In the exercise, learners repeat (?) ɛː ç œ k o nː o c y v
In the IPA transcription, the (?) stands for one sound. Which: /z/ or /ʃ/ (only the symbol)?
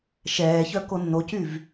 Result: ʃ